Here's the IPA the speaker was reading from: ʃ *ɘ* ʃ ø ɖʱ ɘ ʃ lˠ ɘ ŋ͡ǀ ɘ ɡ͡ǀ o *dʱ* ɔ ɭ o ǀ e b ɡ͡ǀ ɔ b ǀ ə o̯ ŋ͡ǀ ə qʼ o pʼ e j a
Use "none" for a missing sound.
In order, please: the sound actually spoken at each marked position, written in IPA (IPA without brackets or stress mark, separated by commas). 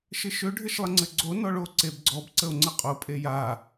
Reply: ɘ, n